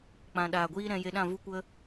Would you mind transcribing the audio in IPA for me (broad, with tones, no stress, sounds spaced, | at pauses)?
k͡p ã˨ ɗ aː˨ ɡʷ iː˧ ɾ ɛ̃˧ j e˧ ɗ ã˦˨ v u˧ kʷ ə˧